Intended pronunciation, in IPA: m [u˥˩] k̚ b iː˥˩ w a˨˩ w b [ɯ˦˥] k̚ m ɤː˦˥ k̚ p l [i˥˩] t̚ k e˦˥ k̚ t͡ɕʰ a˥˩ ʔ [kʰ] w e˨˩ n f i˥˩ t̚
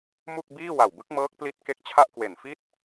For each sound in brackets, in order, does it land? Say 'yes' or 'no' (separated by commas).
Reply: yes, yes, no, no